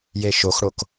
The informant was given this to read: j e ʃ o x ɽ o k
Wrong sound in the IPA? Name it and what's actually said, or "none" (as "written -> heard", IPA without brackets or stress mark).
none